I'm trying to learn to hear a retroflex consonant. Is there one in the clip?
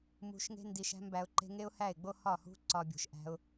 no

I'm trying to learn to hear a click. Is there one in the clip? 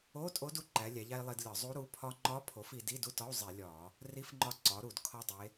yes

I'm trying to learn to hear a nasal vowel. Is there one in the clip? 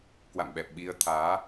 no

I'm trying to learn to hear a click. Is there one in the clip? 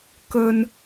no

